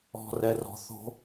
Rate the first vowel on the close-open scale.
mid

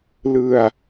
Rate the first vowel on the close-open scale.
close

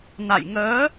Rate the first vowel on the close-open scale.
open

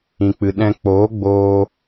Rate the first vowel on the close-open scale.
close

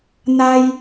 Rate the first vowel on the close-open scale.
open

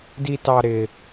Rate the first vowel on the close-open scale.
close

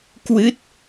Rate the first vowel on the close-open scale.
close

